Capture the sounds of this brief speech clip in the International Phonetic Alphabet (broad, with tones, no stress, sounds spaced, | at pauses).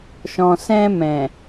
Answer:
ʃ ɔ̃˨ s ɛ̃˧ m ɛ̃˨